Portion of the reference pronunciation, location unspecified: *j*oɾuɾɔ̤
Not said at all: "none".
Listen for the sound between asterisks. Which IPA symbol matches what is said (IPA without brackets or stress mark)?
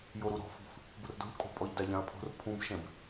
j